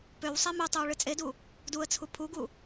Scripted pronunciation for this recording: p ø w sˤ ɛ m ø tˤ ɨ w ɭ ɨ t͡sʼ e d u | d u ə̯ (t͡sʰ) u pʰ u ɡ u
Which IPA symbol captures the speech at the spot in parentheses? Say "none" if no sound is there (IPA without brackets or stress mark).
t͡sʰ